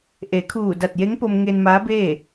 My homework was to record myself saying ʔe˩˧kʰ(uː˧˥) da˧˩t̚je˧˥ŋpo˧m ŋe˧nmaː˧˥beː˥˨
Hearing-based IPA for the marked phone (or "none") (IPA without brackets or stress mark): uː˧˩